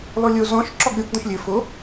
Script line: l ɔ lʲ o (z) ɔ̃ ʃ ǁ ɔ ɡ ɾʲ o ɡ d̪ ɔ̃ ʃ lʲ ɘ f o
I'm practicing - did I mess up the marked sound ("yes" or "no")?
no